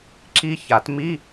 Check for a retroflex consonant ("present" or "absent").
absent